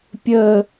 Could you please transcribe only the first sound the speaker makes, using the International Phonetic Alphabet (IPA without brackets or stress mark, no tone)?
pʲ